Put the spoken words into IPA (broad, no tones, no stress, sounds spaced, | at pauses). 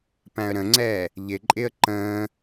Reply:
p æ̃ ə̯ ɾ ə̃ ŋ͡ǀ ɛː | ʎ ɪ ǃʼ ɪ ə̯ ǃ ə̃ː